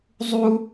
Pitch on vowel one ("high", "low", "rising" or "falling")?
high